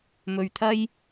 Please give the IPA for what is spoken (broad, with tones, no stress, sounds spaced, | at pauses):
m ɵ˧ ɥ t̪ʰ ɐ˥ j